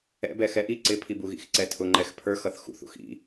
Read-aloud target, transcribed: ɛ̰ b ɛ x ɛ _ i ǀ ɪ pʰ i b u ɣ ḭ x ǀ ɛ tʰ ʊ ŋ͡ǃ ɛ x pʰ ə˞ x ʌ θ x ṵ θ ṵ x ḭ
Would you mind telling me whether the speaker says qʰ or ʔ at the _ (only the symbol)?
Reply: ʔ